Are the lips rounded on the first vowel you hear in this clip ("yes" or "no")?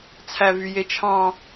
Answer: no